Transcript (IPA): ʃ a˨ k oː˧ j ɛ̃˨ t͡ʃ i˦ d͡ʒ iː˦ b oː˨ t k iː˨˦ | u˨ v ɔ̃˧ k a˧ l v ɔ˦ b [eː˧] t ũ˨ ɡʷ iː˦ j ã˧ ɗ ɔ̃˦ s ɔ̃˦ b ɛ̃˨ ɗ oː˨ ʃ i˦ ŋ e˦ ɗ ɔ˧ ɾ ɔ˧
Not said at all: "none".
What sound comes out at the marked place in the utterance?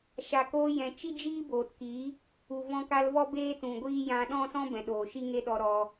eː˦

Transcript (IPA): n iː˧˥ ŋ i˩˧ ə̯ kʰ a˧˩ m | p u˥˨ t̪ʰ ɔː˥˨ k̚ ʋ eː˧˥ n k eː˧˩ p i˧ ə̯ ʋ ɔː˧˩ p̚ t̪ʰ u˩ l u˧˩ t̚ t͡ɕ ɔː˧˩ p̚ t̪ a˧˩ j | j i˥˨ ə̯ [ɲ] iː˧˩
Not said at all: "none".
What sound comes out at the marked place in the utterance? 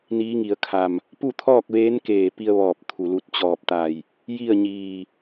ɲ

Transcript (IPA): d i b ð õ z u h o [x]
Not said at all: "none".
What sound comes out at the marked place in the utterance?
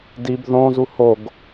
ɡ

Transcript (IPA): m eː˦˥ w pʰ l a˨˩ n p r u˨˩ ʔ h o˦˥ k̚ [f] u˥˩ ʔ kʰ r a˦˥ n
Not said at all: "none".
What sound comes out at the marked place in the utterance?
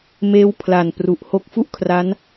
f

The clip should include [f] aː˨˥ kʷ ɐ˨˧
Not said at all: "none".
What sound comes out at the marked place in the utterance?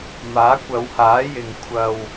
m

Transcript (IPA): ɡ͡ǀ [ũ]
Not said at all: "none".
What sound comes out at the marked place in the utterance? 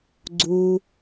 u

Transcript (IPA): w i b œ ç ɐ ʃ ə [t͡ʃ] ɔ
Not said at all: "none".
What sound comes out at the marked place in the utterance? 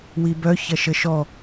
ʃ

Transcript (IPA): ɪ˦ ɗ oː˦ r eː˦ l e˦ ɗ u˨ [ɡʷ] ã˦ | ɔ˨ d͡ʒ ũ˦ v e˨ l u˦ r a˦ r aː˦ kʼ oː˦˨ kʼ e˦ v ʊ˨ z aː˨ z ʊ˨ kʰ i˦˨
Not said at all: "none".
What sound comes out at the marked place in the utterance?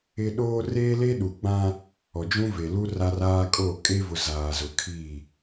ɡ͡b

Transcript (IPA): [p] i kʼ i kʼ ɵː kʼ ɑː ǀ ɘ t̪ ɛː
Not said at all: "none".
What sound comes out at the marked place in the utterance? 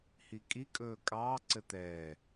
h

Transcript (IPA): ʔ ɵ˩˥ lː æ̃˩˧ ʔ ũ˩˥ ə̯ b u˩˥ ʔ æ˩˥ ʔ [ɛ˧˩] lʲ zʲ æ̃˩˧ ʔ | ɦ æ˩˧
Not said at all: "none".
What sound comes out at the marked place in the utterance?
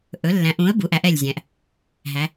ɛ˧˩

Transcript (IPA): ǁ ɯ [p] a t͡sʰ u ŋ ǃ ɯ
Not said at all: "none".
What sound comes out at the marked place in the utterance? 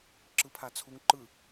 pʰ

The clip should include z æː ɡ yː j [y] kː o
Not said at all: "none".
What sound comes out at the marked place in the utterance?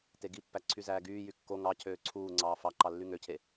y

